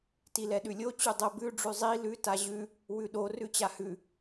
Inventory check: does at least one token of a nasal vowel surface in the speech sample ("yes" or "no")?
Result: no